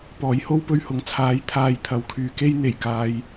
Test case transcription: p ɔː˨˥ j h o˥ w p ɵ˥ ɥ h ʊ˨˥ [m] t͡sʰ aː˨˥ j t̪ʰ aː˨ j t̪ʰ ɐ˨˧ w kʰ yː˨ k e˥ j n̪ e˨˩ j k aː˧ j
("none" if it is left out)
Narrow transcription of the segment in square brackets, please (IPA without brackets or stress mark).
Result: ŋ